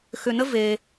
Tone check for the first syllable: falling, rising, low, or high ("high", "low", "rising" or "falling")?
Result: low